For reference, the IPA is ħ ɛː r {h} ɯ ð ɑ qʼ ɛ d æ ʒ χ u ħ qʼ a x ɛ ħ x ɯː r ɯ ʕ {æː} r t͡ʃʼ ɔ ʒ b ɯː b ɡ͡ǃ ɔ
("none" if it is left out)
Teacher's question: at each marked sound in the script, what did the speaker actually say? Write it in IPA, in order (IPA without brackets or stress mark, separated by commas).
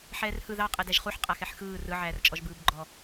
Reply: h, æː